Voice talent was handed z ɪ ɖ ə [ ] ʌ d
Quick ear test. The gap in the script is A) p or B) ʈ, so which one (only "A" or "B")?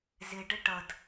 B